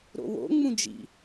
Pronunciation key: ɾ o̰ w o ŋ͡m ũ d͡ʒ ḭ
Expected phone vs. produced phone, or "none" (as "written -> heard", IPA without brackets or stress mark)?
o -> o̰